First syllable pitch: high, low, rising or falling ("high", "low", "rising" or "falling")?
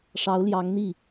rising